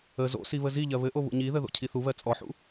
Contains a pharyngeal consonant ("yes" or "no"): yes